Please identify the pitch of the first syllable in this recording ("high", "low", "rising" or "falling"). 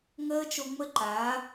high